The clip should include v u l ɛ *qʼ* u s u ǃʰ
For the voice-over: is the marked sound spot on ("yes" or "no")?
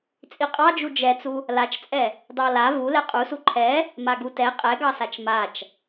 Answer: yes